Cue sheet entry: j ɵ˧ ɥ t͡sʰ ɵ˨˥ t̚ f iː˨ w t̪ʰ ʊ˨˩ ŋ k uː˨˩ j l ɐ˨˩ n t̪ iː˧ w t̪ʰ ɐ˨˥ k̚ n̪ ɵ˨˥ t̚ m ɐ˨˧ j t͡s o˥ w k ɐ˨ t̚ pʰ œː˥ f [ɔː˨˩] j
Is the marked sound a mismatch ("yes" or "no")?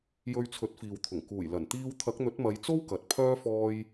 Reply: yes